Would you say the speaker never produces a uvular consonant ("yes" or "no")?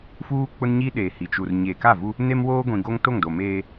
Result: yes